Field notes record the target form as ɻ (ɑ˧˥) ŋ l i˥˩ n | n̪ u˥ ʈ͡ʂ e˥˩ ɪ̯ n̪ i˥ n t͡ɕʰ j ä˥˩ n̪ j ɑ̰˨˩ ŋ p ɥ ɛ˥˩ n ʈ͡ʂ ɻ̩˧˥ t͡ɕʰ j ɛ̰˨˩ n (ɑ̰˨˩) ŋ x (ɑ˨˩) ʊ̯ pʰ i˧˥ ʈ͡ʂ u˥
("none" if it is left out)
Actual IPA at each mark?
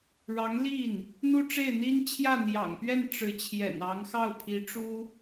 ɑ˧˥, ɑ˧˥, ɑ˥˩

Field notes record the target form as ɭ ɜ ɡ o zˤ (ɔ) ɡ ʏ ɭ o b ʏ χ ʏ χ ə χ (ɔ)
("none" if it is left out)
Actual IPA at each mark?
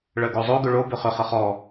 o, ɔ

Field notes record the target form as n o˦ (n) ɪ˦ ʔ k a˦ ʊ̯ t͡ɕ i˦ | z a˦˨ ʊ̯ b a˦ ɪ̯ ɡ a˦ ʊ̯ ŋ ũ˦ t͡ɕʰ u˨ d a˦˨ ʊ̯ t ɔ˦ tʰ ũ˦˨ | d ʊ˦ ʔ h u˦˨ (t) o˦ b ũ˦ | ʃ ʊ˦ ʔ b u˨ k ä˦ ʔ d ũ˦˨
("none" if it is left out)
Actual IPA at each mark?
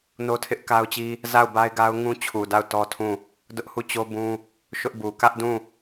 tʰ, t͡ɕ

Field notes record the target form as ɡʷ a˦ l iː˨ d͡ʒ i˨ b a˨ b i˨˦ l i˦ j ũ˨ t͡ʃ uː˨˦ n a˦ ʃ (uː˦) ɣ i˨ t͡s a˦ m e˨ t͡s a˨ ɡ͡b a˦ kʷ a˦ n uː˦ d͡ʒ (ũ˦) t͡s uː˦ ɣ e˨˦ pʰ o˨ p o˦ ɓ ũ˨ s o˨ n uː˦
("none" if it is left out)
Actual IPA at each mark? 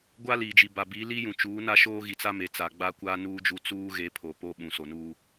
oː˦, u˦

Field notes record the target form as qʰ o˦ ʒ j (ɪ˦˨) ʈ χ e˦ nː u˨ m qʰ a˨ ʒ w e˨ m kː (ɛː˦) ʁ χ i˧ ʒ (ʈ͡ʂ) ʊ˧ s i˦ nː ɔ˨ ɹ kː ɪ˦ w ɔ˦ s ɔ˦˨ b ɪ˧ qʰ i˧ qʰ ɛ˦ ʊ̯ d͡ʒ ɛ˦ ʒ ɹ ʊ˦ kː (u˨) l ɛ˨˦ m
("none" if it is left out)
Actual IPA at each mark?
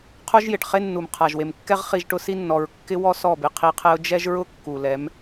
ɪ˨, ɛ˦, ʈ, u˨

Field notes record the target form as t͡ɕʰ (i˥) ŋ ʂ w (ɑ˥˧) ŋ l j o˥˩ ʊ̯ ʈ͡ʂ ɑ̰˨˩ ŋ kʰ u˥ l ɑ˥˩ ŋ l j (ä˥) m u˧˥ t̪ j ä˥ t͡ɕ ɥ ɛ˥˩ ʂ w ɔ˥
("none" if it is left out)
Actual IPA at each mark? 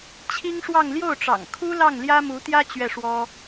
i˥, ɑ˥˧, ä˥

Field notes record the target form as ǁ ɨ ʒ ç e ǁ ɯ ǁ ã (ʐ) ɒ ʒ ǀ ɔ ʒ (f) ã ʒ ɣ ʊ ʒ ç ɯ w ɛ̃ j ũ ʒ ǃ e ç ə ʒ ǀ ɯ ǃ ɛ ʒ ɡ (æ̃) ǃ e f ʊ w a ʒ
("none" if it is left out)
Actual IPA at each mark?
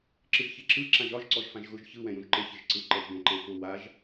ʒ, f, ɛ̃

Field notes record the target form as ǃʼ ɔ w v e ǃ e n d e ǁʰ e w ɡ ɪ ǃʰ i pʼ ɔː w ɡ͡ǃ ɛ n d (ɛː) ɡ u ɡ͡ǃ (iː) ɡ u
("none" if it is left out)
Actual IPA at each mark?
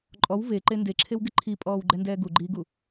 ɛː, iː

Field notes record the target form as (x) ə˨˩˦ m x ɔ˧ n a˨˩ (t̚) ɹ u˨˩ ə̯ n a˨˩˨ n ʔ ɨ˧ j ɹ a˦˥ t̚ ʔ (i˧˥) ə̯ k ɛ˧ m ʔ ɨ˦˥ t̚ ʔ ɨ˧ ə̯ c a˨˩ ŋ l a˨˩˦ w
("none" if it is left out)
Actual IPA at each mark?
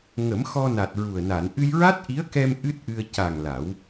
ŋ, t̚, i˧˥

